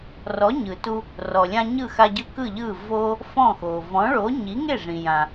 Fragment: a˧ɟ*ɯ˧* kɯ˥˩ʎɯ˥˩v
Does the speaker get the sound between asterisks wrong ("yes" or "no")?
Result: no